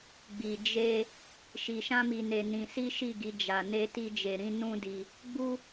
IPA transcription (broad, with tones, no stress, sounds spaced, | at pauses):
ɡ͡b i˧ d͡ʒ e˦ | ʃ i˧ ʃ ã˦ m i˧ n e˧ n ĩ˧ s i˦ ʃ i˦˨ ɡ i˨˦ d͡ʒ a˧ n e˦ t i˦ d͡ʒ e˧ ɾ ĩ˧ n ũ˦ d i˧ | ɡ͡b u˦